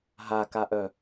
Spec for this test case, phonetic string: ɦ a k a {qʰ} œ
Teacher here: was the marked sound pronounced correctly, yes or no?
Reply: no